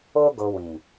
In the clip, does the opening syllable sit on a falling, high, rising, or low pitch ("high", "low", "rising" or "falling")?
high